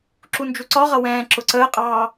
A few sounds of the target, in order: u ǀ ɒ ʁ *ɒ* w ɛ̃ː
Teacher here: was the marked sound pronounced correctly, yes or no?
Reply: no